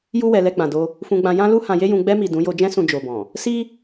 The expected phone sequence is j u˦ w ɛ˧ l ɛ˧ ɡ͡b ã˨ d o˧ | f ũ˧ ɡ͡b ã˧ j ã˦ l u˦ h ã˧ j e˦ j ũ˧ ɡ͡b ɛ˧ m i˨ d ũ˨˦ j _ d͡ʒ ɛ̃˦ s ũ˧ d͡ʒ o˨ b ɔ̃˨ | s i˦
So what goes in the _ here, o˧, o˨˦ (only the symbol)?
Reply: o˧